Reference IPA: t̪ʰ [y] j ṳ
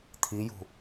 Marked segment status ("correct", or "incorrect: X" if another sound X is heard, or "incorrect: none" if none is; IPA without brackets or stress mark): incorrect: i